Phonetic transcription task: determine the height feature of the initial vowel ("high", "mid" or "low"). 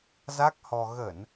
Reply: low